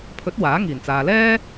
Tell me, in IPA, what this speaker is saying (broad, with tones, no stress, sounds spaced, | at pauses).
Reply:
pʰ ɵ˨˥ t̚ w aː˨˥ ŋ iː˨˩ n t͡s aː˨ l ɛː˥